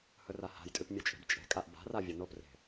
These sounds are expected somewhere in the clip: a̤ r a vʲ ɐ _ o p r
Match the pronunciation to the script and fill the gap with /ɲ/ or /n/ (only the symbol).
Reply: n